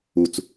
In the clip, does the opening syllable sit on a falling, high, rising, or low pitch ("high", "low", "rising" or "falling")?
low